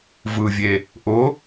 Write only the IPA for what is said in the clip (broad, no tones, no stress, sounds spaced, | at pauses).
v ɯ vʲ e | ʔ ʊ